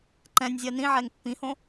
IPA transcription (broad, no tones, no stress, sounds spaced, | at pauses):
ǃ ɛ̃ nʲ zʲ ɜ n ĩ ʕ ɛ ŋ pː ĩ h õ